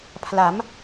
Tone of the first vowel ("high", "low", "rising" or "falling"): rising